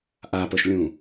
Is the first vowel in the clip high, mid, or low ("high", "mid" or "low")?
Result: low